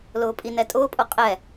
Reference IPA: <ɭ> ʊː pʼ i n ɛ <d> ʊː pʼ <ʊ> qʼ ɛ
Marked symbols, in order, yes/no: no, no, yes

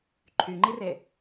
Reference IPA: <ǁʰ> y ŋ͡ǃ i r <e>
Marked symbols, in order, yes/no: no, yes

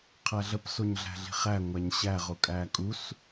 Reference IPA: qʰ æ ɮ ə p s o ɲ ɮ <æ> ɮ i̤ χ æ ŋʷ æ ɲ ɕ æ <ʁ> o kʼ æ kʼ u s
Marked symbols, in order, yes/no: no, yes

